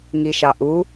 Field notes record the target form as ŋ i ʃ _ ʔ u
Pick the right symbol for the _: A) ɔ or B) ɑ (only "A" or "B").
B